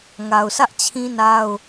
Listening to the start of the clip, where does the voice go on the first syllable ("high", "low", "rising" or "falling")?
low